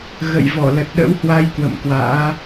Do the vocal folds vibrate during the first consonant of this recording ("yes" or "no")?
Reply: yes